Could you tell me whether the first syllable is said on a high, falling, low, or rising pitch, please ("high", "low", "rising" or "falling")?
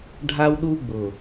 high